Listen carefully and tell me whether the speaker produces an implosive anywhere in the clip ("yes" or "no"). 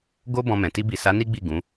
no